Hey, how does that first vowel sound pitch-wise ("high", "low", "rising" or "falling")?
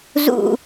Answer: falling